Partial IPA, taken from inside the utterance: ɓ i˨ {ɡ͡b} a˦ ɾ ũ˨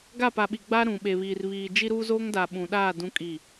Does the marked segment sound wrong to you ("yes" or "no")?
no